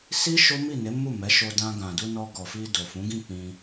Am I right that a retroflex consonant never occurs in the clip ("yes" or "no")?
yes